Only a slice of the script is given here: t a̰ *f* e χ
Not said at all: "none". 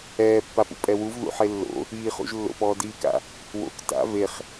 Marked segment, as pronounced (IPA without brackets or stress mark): v